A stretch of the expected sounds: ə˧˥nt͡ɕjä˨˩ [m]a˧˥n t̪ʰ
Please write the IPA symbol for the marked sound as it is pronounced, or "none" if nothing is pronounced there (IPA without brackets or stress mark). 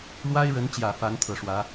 f